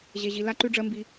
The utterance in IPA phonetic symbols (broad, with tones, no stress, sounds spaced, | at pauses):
ʑ e˨ ʑ i˨ l a˦ ǃ ʉ˦ ɖ͡ʐ ɜ˦ m b i˦